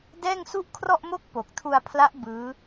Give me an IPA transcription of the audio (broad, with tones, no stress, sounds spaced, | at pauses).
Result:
d ɛː˥˩ ŋ s u˥˩ ʔ kʰ r ɔ˥˩ ʔ m o˥˩ k̚ p o˨˩ k̚ tʰ u˧ a̯ pʰ l a˦˥ ʔ b ɯː˦˥